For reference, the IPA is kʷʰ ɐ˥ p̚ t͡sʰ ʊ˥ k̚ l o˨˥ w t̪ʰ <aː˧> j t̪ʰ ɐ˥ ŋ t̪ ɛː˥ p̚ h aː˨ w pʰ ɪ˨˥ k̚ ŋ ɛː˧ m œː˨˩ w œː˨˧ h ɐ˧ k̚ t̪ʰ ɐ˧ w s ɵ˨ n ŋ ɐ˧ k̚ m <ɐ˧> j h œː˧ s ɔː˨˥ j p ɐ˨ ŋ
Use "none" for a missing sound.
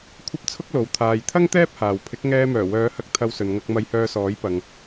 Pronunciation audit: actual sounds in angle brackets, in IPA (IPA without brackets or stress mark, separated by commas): aː˨, ɐ˧